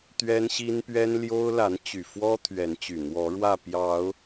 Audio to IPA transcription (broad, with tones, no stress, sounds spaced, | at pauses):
t̪ ɥ ɛ˦ n ɕ i˦ n p ɥ ɛ˦ n l j o˦ ʊ̯ l a˨˦ n t͡ɕ y˨˩ f w ɔ˦ t̪ʰ ɥ ɛ˨˦ n t͡ɕ y˨˩ n̪ w ɔ˨˦ ɻ w ä˥˨ p j ɑ˨˦ ʊ̯